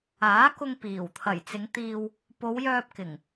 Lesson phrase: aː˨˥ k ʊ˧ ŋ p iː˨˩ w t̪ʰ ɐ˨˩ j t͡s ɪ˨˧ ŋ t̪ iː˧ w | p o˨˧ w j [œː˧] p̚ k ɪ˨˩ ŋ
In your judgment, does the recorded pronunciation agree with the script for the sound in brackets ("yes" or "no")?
yes